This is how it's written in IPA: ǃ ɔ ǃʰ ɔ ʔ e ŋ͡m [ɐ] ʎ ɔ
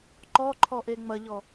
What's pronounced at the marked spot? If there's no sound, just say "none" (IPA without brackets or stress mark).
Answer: ɐ